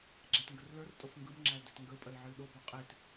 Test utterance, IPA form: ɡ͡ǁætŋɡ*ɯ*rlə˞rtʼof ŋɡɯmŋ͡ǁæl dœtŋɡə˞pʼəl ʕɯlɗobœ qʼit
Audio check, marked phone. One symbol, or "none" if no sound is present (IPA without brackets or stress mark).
ə